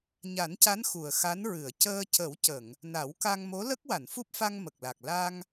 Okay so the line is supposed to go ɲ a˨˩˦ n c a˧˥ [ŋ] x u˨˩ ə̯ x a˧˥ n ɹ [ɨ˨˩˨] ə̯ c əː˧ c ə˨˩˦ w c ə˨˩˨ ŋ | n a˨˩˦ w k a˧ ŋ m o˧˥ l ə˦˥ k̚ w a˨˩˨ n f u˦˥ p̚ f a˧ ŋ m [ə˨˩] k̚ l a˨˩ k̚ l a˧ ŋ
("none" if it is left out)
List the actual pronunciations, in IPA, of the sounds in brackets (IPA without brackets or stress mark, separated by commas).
n, ɨ˨˩˨, ə˨˩